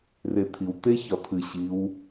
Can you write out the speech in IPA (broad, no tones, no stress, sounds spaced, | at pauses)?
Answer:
r e t̪ʰ i w t̪ e ç ɒ t̪ʰ ɨ ɕ i w